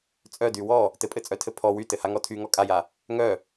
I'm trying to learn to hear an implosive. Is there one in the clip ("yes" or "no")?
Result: no